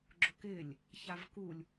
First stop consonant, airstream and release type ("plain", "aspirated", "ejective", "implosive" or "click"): click